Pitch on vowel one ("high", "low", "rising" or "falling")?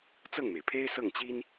falling